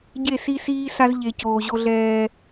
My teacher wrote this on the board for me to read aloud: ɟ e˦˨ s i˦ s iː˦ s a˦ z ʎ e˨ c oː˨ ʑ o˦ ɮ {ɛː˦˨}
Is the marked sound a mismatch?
yes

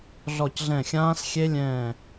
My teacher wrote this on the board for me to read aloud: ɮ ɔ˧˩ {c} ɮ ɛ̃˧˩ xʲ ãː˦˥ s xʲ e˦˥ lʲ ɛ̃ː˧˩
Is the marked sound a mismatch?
no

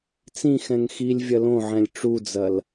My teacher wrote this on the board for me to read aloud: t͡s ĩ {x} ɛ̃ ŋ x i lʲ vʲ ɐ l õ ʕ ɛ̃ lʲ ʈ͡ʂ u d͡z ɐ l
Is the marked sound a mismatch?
no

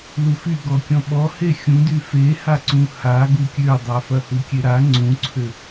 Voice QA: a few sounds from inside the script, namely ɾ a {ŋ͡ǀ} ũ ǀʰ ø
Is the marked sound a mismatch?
no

